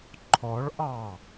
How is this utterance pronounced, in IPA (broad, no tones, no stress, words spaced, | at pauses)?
ǃʰɔɭʔɑ